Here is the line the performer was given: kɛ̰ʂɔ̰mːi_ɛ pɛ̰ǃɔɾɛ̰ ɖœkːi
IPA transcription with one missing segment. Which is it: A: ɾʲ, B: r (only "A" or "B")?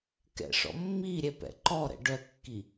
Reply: A